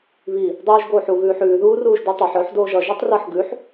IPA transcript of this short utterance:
β i | dˤ uː ʒ ɡ oː ħ u ɣ ʉː ħ ʉː ð uː r uː ʒ d ʉ tˤ ʌ ħ œ ħ d oː ʒ ʌ ʒ u tˤ r ʌ ħ ɡ ʉ ħ

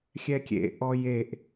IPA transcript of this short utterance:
xʲ ɛ kʲ ḛ ʔ ɔ j e ʔ

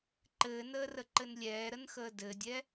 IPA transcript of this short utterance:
ǃ ɘː n əː r ə ǃ ɘ n lʲ ɛː ɾ ə n x əː d ɘ dʲ ɛ

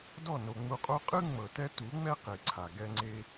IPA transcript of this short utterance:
d ɔ˦˨ n o˨ ŋ͡m u˧ qʼ o˦ qʼ ɯ˦ ŋ͡m ɤ˨ t ɛ˦ t u˨˦ ŋ͡m ɛ˦ q e˨ ǀʰ a˨ ɡ ɛ˦ ŋ͡ǀ e˦

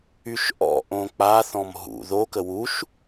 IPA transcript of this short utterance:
y ʃ ʔ ɔ̰ ʔ õ k͡p a θ ɔ̃ m ɦ ṵ ð o k ə w u ʃ

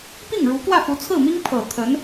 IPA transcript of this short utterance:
p i˥˩ ŋ ɻ u˧˥ k w ä˥˩ f u˧˥ t͡sʰ ɹ̩˥˩ m i˥ ŋ pʰ ɤ˨˩ t̪ʰ ə˧˥ n

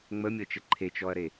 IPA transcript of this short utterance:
ŋ͡m ə mʲ ɤ t͡ʃ ə ǃʰ e t͡ʃ ɔ ɐ̯ ɾ e

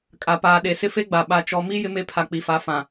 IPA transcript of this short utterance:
kʼ a˨ p aː˨ ɗ e˨ s ɪ˦ f e˦ ɡ͡b a˨ ɓ a˨ t͡ʃ ɔ˨ m i˦ j ɪ˦ m e˦ pʰ a˨ k͡p i˨ f a˨˦ f ã˨

